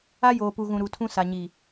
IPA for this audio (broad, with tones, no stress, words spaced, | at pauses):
a˦joː˨pu˨ɣũ˨ ɾu˨tʰũ˦ sa˨ɲi˨